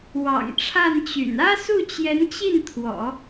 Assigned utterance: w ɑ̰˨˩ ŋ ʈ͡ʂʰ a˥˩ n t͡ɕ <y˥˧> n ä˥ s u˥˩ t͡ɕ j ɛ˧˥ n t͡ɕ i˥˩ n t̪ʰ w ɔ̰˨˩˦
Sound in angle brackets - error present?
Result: yes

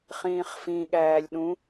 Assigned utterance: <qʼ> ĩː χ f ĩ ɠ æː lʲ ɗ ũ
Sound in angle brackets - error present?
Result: yes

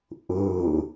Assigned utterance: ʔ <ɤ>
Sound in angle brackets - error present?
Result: no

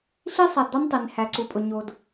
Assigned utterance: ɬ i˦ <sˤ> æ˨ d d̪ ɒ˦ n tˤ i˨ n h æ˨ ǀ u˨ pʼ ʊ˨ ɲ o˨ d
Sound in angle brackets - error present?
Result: no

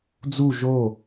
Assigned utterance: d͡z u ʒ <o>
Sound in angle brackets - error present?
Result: no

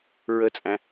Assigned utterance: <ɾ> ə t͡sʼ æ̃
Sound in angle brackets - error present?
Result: yes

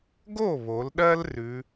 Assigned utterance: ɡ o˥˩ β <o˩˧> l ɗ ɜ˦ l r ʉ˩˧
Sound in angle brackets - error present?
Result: no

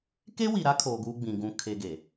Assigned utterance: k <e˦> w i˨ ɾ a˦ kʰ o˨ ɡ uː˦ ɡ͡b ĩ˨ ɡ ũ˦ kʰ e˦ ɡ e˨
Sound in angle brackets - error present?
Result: no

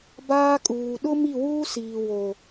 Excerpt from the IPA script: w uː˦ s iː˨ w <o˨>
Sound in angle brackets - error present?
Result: no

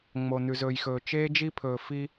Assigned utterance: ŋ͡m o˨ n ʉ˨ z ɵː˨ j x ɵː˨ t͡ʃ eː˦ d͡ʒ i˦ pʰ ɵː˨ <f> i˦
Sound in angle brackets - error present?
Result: no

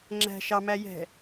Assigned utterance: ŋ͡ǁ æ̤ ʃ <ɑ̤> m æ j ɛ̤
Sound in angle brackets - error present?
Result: yes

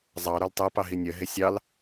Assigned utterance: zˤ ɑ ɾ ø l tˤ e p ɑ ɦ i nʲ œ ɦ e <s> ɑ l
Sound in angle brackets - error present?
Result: yes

